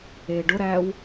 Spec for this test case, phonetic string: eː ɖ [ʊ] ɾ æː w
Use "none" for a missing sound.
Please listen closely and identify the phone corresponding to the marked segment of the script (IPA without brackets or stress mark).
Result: ʊ